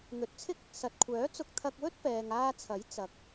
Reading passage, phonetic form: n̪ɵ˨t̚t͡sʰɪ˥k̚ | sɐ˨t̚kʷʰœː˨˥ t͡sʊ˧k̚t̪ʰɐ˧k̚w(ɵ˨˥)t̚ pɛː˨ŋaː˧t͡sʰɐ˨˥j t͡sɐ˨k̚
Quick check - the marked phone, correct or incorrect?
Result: incorrect